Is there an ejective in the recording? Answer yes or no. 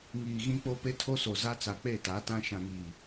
no